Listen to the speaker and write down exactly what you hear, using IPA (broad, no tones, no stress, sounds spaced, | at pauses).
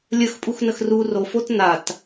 lʲ ə x pʼ u x n ə x r u r o f o t n a t